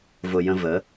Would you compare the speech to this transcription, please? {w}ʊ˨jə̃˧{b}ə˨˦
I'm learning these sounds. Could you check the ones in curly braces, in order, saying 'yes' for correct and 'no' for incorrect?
no, no

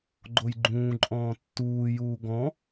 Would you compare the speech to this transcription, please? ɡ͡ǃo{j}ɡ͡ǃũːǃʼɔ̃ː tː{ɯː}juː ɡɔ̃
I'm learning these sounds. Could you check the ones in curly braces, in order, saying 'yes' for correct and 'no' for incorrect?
yes, no

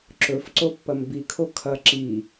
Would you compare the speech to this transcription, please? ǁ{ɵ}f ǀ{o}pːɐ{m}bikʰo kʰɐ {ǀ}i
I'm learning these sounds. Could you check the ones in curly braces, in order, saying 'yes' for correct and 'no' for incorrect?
yes, yes, yes, no

